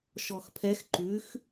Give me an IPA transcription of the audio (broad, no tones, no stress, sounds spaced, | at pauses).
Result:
ʃ ɔ x pʰ ɛ x ǃ ʉ x